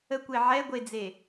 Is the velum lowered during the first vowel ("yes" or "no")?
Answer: no